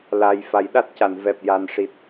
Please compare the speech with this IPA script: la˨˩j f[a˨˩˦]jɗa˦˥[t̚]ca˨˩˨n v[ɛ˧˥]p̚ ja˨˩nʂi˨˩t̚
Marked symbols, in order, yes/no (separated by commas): yes, yes, no